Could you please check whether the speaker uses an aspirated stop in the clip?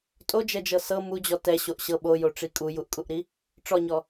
no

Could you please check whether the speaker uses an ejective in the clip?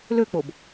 no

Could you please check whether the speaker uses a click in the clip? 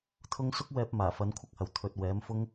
no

